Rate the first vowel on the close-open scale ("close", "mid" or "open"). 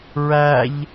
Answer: open